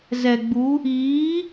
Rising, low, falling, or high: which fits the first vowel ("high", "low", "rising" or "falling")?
low